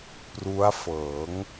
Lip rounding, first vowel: rounded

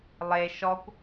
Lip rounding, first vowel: unrounded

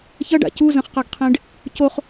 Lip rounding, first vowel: unrounded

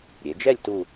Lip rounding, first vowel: unrounded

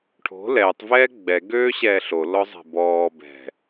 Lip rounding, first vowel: rounded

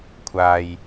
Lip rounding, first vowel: unrounded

